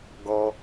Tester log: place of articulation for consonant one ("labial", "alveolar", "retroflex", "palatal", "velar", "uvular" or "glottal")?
velar